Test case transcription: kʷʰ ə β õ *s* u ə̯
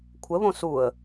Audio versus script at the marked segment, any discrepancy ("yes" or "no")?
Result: no